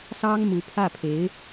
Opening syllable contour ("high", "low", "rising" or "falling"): high